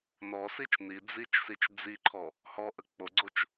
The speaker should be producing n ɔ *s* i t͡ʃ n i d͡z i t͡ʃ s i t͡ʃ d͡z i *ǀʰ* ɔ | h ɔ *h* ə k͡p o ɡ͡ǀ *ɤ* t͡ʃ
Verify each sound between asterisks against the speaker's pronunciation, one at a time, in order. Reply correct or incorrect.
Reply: correct, incorrect: ǃʰ, incorrect: ʔ, incorrect: o

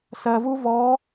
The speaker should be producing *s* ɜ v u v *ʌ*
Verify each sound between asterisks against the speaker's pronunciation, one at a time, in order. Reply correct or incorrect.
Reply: correct, incorrect: ɔ

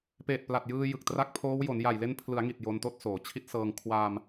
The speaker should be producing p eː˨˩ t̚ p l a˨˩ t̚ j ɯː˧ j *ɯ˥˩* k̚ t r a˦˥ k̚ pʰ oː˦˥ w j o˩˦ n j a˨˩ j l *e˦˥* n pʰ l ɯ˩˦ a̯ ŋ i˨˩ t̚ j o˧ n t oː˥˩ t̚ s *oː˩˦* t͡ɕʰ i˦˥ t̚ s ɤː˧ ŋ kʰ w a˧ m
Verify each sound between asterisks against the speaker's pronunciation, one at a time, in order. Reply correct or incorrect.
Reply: incorrect: ɯ˨˩, incorrect: e˧, correct

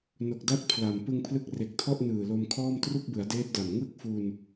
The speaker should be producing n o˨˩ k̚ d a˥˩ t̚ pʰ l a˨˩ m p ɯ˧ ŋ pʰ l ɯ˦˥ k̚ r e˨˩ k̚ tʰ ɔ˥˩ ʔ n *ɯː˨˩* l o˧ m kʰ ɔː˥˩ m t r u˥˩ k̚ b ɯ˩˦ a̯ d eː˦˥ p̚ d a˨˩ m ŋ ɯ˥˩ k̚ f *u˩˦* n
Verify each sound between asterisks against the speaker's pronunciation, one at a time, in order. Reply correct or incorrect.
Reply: correct, incorrect: u˧

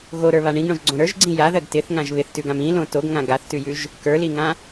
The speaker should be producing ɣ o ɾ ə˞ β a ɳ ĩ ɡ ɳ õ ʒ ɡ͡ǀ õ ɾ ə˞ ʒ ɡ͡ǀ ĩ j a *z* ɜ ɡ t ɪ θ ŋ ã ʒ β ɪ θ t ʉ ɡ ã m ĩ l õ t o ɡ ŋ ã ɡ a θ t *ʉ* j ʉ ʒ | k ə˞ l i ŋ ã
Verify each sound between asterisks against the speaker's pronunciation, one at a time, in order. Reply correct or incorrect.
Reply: incorrect: ð, correct

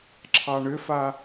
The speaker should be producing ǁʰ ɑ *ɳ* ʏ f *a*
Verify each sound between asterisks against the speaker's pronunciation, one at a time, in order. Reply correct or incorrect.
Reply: correct, correct

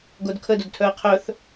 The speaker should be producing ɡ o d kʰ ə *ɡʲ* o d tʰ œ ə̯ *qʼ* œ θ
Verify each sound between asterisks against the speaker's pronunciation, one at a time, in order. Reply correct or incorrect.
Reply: incorrect: d, incorrect: qʰ

